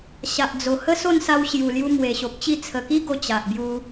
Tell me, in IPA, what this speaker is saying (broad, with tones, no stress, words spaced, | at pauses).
ɕa˨ʔd͡zo˨˩ hə˦so˥˧nsa˧w ɕju˨˩lju˧ mwe˨˩ɕo˨p̚t͡ɕi˥˧ t͡sʰə˨˩ki˦ɡo˧ t͡ɕa˨ʔbju˧